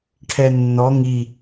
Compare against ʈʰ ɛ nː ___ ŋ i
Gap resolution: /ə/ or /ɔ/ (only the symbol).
ɔ